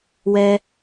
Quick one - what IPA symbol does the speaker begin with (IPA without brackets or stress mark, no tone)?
w